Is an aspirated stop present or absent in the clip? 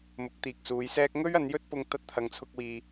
present